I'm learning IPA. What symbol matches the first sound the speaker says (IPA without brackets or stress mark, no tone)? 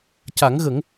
c